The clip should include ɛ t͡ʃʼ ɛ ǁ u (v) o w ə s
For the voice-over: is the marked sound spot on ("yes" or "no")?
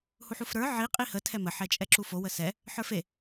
no